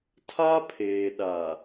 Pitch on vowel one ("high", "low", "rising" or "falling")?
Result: high